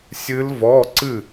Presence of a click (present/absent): present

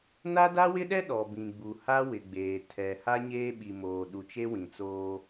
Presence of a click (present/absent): absent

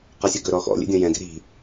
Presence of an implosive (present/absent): absent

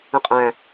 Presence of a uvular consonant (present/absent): present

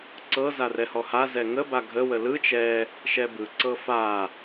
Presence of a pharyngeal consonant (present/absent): absent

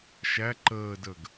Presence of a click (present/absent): present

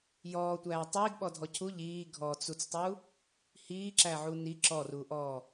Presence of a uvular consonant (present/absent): absent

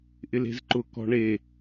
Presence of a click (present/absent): present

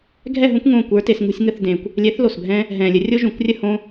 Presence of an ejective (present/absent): absent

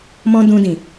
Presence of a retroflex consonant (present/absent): absent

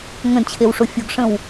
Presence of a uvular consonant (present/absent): absent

